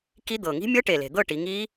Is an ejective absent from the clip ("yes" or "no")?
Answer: yes